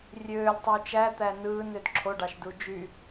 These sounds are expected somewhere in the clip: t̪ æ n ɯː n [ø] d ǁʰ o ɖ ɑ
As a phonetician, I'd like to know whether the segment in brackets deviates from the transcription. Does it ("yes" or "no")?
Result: no